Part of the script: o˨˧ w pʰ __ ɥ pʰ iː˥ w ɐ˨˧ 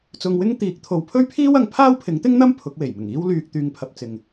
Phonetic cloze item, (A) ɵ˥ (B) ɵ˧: A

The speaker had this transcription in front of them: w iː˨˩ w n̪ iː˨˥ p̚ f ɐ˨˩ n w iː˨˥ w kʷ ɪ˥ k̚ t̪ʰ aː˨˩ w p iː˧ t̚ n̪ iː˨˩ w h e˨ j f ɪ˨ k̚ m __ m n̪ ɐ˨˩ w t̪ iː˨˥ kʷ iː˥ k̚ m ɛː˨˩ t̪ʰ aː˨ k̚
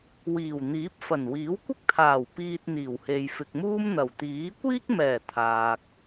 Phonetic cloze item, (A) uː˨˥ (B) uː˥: B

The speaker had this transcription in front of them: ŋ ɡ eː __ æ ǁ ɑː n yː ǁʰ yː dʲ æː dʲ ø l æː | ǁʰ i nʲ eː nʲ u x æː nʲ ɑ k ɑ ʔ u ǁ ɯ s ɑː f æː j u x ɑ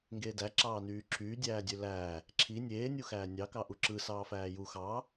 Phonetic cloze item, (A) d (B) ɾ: A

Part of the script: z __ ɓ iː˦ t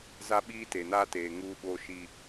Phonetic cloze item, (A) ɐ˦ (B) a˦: B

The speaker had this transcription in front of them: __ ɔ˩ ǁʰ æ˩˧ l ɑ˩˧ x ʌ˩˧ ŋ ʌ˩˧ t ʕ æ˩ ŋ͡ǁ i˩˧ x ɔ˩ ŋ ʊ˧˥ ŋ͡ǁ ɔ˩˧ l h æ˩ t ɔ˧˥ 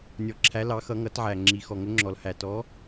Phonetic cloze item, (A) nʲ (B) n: A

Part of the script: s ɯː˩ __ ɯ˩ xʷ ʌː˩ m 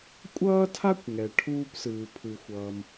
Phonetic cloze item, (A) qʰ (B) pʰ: B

